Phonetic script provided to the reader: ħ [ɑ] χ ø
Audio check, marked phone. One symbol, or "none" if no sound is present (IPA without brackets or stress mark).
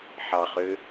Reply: ɑ